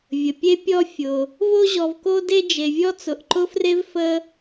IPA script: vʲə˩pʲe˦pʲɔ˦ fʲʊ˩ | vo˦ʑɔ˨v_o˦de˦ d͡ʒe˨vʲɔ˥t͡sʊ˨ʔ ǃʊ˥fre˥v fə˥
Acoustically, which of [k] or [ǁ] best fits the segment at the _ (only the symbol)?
k